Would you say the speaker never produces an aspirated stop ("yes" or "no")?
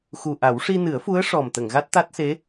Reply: yes